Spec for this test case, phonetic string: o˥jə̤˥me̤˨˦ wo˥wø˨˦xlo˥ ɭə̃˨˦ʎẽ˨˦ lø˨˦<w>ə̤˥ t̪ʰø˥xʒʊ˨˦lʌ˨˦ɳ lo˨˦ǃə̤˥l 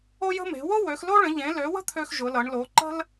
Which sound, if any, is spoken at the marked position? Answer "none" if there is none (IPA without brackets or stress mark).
w